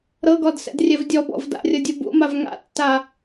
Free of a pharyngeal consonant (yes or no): yes